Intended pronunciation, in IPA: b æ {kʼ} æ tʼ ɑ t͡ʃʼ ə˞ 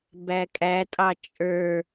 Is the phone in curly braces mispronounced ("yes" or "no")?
no